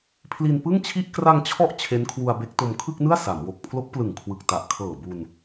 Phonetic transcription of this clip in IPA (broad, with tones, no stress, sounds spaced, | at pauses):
pʰ l i˧ n p ɯ˥˩ ŋ t͡ɕʰ i˥˩ ʔ k r a˧ ŋ t͡ɕʰ ɔ˦˥ ʔ t͡ɕʰ e˦˥ n kʰ w u˧ a̯ b e˦˥ k̚ t o˧ m kʰ ɯ˥˩ k̚ n ɯ˥˩ a̯ s a˩˦ m w o˨˩ k̚ pʰ l o˦˥ k̚ p l ɯ˨˩ ŋ kʰ w ɯ˨˩ k̚ t a˨˩ ʔ kʰ ɤː˨˩ b u˧ n